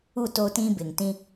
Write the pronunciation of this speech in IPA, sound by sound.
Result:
u˦˨ t o˦ t ĩ˦ b ɪ˨ ŋ t ĩ˦

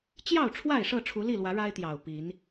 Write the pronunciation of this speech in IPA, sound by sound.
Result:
t͡ɕ j ɑ˥˨ ʊ̯ ʈ͡ʂʰ w a˥˨ ɪ̯ ʂ ɤ˥˨ ʈ͡ʂʰ u˨˦ l i˥˨ l w ä˨˦ ɻ a˦ ɪ̯ t̪ j ɑ˨˩ ʊ̯ p i˨˦ n

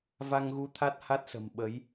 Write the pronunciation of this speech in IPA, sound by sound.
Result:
v a˧ ŋ ɣ u˧ t̪ʰ a˦˥ t̚ h a˦˥ t̚ s ə̤˨˩ m ɓ ə˨˦ j

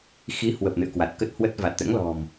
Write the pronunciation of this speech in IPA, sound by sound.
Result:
x i˨˦ h w ə˨˩ p̚ n ɨ̰˧˨ ə̯ k w a˨˩ t̚ k ə˦˥ t̚ h w ə˦˥ t̚ v a˨˩ t̚ t̪ ɛ̰˧˥ ŋ l ɔ̤˨˩ m

